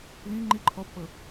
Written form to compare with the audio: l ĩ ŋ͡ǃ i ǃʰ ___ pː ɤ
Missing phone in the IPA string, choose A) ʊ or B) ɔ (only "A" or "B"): B